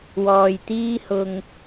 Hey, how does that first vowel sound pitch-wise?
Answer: low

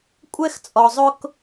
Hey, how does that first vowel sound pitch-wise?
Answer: high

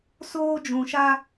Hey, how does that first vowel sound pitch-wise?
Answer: high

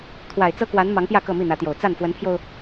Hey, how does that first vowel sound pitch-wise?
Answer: low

